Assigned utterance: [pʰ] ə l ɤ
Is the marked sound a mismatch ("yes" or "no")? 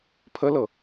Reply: no